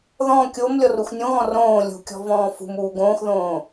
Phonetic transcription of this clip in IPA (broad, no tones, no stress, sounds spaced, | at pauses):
ð ɔ̃ kʲ o m lʲ ɔ r u x nʲ õ ɣ ɔ̃ r õː lʲ ṳ kʲ ɔ̤ v ɔ̃ː f ṳ m uː ɡ õː x ð õː